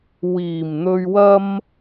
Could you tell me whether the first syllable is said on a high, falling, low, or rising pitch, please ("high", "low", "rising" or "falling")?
low